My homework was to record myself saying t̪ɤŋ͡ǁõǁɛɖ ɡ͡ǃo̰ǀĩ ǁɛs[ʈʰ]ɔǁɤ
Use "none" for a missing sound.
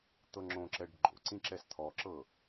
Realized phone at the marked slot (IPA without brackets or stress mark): t̪ʰ